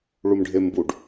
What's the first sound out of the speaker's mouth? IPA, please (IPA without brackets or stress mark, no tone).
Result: ɭ